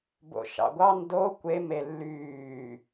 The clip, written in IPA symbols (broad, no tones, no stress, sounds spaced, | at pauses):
b o̰ ʃ ɑ̰ ɡʷ ɑ n d o kʷ e m e lː yː